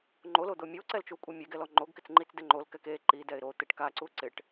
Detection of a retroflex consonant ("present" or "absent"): present